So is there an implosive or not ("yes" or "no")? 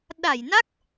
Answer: yes